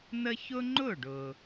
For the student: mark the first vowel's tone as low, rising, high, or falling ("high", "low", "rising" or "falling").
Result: high